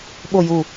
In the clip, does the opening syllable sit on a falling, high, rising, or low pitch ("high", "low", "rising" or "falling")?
low